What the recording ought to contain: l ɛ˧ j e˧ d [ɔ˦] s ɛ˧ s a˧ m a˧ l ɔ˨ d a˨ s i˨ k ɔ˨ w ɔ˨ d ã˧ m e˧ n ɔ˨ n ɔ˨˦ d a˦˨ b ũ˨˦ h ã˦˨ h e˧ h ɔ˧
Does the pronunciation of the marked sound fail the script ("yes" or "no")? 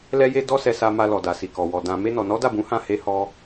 no